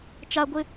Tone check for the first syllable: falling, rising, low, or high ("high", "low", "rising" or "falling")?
high